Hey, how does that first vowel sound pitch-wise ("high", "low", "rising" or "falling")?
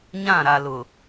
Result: falling